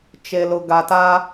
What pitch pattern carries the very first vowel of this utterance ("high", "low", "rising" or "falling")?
low